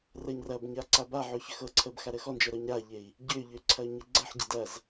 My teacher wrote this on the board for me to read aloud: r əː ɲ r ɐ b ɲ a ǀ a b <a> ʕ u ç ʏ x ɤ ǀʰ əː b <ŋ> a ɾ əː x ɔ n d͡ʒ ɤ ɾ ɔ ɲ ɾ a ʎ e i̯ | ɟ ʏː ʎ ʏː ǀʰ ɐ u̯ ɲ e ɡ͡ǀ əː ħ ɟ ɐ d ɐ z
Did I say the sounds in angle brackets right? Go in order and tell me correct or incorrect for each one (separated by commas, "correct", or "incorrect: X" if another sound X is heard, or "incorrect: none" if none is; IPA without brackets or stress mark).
correct, incorrect: x